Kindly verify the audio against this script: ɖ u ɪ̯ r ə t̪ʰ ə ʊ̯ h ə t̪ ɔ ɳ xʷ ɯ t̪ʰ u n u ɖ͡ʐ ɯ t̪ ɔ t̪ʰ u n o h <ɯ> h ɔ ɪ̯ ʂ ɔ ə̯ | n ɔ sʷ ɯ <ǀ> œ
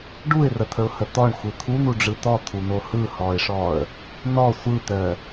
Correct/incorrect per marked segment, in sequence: correct, incorrect

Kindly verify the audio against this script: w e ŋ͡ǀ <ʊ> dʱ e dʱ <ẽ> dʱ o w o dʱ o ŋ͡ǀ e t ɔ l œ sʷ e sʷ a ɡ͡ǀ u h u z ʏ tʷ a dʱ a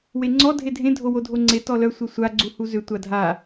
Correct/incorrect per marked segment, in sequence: incorrect, correct

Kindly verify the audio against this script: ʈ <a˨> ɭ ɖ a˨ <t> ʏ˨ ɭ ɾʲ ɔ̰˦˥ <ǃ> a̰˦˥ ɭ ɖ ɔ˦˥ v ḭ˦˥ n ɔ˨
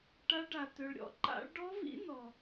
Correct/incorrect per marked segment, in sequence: incorrect, correct, correct

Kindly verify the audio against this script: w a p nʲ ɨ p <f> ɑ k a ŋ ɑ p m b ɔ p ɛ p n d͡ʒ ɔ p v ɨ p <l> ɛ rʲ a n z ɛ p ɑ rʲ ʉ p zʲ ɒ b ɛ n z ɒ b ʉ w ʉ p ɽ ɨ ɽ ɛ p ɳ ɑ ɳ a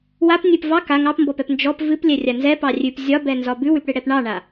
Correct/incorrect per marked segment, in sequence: incorrect, incorrect

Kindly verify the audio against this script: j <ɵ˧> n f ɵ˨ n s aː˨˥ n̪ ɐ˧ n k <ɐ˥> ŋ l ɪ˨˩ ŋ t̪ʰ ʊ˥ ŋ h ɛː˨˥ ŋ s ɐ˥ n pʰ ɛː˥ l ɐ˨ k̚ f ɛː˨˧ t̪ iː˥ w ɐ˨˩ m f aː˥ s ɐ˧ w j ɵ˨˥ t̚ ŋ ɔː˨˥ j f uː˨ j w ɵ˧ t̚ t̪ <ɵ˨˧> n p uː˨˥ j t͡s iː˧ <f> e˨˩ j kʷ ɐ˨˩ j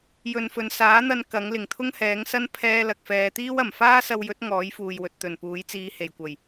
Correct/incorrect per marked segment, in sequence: incorrect, incorrect, incorrect, incorrect

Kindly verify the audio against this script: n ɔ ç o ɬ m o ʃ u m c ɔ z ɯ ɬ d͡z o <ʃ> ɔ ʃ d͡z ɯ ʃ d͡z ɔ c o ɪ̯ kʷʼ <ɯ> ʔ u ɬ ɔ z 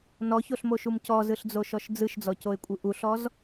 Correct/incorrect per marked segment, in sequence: correct, correct

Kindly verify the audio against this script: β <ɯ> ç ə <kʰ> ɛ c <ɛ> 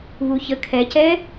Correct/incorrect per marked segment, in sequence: incorrect, correct, correct

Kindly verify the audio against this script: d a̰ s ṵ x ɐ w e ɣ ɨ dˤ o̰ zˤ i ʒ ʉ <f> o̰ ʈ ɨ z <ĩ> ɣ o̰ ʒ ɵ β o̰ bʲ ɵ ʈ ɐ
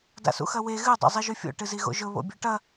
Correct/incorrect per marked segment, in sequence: incorrect, incorrect

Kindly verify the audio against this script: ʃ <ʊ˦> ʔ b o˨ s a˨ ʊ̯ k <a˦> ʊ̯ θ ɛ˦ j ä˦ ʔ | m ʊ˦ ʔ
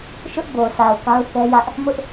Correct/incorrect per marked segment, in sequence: correct, correct

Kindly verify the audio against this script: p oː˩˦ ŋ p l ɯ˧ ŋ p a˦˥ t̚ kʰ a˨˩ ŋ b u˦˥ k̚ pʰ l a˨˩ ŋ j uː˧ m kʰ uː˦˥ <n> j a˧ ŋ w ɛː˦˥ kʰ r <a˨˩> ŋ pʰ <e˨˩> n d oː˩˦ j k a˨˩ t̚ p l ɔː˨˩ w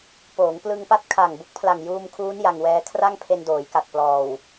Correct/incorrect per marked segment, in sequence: correct, incorrect, incorrect

